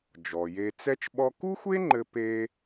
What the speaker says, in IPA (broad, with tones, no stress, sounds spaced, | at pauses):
d͡ʒ ɔ˩ j e˧ t͡s ɛ˥ t͡ʃ ɓ ɔ˥ k u˥ xʷ e˥ ŋ͡ǃ ɘ˧ p e˥